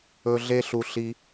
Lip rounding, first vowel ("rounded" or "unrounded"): rounded